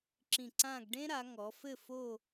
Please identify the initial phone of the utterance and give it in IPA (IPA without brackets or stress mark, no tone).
ǁ